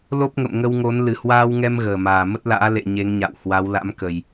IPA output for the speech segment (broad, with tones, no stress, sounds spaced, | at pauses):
l o˦˥ p̚ ŋ ə̰˧˨ m ŋ ə˧ w ŋ o˨˦ n l ɨ˨˩ h w aː˧ w ŋ ɛ˧ m ɣ əː˨˩ m aː˨˩ m ə˦˥ t̚ l a̰ː˧˥ l ḛ˧˨ ɲ e˨˦ ŋ ɲ a̰˧˨ w h w a˨˦ w l a̰˧˥ m k ə˨˩ j